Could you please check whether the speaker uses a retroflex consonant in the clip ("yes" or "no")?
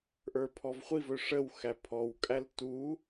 yes